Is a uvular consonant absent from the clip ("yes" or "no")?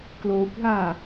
yes